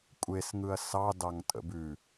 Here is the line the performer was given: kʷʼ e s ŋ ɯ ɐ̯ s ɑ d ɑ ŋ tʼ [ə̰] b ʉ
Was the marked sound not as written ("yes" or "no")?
no